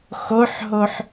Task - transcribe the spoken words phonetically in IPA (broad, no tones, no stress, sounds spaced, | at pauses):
x o ħ ɦ o ħ